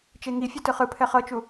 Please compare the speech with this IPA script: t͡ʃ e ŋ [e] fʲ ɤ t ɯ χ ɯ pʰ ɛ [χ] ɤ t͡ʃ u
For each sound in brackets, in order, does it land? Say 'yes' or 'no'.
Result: no, yes

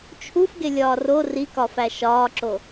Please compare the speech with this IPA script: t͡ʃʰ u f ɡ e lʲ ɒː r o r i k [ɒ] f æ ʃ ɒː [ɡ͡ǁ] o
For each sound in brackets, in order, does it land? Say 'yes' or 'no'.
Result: yes, no

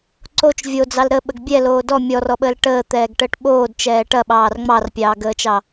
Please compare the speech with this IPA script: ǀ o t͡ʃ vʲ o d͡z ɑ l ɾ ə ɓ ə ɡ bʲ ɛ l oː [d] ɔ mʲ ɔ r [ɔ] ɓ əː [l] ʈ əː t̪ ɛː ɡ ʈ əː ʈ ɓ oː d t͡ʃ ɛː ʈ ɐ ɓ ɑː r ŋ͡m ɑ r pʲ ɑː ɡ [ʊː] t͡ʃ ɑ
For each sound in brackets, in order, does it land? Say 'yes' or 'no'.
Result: yes, yes, yes, no

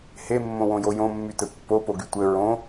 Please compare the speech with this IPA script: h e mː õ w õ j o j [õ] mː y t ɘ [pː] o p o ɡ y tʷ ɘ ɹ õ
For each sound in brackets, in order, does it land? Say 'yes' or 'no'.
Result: yes, yes

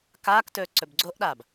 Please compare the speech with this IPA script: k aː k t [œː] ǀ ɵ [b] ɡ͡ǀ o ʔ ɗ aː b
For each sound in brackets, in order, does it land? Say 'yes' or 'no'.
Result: no, yes

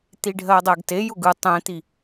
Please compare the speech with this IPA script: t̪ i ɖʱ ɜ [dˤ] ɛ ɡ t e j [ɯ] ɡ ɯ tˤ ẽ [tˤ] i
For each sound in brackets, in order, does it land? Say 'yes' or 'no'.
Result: yes, no, no

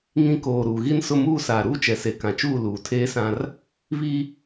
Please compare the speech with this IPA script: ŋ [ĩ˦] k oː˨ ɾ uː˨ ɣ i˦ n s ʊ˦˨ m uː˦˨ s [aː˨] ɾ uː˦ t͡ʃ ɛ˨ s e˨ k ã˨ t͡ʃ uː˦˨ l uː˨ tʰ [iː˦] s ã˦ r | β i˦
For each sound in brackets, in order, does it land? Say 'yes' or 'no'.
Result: yes, yes, no

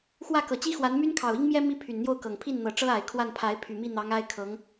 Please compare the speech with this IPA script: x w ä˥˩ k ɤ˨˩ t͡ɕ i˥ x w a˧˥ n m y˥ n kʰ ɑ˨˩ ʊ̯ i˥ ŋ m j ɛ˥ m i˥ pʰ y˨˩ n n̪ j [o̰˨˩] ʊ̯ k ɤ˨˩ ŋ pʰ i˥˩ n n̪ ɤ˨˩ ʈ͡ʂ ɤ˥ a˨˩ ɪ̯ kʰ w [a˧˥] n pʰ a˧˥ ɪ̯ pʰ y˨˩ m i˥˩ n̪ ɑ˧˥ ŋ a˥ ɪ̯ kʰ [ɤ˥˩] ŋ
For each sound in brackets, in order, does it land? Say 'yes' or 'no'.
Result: no, no, no

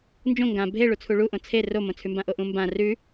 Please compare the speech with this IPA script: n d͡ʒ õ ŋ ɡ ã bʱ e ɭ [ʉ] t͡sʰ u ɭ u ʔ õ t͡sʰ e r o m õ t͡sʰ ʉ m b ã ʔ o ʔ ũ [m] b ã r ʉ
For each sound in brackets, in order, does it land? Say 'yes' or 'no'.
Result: no, yes

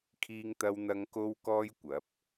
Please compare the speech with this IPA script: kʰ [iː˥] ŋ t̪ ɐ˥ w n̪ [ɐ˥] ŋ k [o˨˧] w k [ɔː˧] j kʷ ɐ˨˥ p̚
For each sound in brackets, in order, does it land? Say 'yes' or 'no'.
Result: yes, yes, no, no

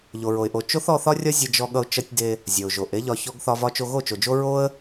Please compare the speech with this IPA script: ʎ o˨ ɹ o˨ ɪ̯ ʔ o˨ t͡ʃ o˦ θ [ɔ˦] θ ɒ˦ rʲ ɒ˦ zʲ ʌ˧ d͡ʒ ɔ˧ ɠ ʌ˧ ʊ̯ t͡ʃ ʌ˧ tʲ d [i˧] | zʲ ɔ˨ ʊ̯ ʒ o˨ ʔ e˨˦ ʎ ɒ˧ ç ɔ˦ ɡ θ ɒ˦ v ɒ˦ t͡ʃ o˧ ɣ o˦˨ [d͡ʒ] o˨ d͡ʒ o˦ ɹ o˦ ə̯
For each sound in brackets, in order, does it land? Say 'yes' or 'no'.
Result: no, no, no

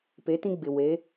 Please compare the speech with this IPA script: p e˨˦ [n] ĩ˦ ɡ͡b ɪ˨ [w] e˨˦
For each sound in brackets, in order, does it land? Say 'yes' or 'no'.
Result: no, yes

